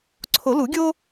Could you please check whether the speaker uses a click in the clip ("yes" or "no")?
yes